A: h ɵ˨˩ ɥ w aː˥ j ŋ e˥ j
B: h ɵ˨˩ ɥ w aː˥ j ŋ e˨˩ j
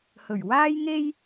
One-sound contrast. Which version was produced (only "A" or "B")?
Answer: A